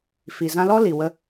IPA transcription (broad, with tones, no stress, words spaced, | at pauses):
fi˨zã˧lɔ˦ li˨ wə˧